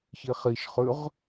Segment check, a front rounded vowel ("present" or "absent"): absent